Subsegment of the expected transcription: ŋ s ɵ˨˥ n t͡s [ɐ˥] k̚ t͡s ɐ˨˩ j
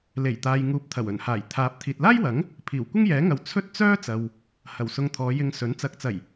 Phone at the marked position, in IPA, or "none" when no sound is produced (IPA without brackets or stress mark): ɐ˨˥